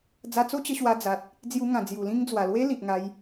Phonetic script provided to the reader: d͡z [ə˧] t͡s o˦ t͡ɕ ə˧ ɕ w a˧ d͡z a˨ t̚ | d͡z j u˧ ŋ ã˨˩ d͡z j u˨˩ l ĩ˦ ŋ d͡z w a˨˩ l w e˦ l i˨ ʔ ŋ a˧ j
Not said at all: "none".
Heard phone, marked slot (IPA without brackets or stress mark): a˧